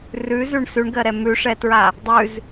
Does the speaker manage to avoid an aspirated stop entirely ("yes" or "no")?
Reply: yes